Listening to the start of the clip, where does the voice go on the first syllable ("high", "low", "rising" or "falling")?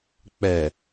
low